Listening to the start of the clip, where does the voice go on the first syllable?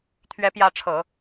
rising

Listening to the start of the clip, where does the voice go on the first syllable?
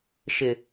low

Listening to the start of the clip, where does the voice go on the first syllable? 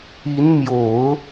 rising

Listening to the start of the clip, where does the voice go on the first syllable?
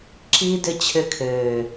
high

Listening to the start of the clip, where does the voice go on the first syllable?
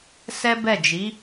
high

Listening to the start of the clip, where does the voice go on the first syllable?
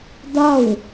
falling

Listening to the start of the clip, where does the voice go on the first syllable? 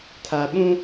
low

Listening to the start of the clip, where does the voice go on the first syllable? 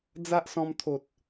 high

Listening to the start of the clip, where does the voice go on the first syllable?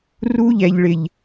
high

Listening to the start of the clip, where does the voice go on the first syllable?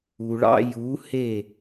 low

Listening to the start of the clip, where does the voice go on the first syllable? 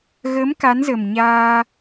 rising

